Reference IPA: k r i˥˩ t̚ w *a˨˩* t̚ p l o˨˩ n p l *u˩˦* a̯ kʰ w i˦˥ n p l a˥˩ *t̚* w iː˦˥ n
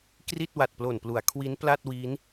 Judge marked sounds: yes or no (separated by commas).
yes, yes, yes